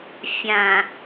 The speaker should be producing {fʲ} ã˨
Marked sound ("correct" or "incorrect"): correct